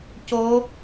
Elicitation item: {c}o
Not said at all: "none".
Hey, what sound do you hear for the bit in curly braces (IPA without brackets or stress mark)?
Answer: c